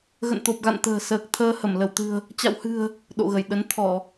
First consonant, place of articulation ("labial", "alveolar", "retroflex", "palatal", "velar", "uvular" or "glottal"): velar